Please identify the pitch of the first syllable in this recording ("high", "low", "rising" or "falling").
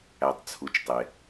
low